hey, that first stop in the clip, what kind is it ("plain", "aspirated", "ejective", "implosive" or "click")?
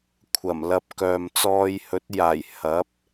aspirated